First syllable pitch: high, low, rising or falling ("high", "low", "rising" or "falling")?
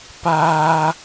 high